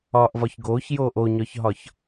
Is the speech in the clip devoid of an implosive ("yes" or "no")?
yes